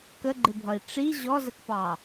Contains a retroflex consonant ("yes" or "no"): yes